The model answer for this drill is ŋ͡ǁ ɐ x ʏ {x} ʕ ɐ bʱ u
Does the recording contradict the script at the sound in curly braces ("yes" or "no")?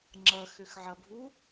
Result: no